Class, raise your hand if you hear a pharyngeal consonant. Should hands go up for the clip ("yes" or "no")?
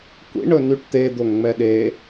no